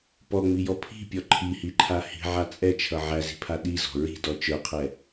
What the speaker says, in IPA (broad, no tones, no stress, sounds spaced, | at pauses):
p ɔ ŋ͡m i j ɔ pʰ i̤ pʲ ɔ ǃʰ i h i ǃʰ a h i̤ ʕ a t͡sʼ ɛ t͡ʃʰ ʌ ʕ æ z i̤ pʰ a ɗ i z ɔ̤ ɹ i̤ d ɔ t͡ʃ ə˞ qʰ ɛ